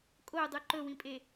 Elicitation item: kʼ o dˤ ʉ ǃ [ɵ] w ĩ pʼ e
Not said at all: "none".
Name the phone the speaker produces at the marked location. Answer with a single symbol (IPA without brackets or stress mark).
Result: ɵ